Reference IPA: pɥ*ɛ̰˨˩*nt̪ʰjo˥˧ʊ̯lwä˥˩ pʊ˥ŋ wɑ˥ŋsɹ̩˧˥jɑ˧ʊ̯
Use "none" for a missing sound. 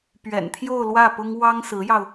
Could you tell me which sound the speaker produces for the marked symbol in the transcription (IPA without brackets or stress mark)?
ɛ̰˨˩